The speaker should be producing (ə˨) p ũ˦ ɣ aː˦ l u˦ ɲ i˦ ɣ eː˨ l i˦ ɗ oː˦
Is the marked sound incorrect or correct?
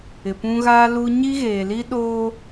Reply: incorrect